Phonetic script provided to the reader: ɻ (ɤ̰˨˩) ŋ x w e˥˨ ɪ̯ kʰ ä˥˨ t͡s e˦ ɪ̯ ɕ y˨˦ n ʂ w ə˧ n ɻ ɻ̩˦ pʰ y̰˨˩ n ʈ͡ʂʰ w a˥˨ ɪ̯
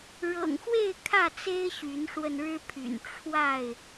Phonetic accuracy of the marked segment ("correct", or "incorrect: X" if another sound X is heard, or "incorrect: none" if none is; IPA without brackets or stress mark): correct